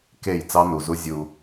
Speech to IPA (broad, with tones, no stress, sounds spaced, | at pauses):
k e˦˨ j t͡s ɑ˦ n u˨ z u˦ zʲ u˧